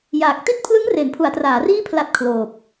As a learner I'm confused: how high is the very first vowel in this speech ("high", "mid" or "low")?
low